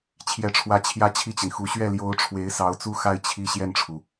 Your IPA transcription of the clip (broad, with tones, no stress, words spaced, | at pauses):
t͡ɕʰjɛ˧˥ʈ͡ʂʰwä˧˥ t͡ɕʰjä˥˧t͡ɕʰi˥˩t͡ɕi˩nxu˧˥ ɕɥɛ˥˩ljo˧˥ʊ̯ ʈ͡ʂʰwe˧˥ɪ̯sɑ˧˥ʊ̯t͡su˥˧xa˥˧ɪ̯ t͡ɕʰi˥˧ ɕjɛ˥˩nʈ͡ʂʰu˩